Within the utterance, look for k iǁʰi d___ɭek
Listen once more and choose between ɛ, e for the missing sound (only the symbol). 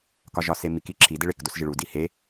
e